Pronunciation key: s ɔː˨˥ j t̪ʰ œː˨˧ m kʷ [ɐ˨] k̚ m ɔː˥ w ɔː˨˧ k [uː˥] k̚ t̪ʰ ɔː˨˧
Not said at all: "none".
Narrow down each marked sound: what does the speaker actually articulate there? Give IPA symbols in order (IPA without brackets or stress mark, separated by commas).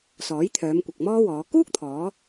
ɐ˨, uː˥